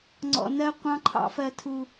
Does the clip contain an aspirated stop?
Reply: yes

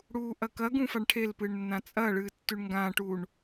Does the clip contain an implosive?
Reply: no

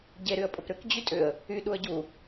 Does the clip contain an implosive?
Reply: yes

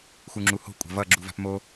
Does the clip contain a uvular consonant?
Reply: no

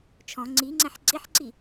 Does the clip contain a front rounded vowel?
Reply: no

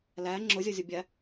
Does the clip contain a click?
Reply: yes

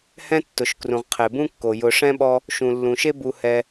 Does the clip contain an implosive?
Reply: yes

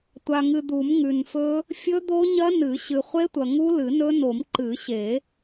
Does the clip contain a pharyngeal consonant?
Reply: no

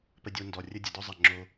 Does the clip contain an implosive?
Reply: no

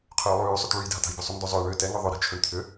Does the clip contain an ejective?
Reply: no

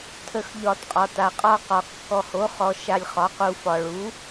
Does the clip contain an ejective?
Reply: yes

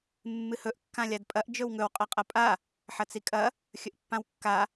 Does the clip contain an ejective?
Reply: yes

